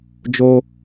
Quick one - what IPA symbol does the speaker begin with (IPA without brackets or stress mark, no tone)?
d͡ʒ